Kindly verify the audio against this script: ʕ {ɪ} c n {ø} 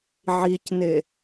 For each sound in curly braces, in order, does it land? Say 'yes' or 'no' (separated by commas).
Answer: no, no